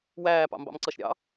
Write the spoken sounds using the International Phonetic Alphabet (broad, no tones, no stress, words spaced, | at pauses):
wæːpɑ̰mbɑ̰mǀʌʃ ɾʲɑ̰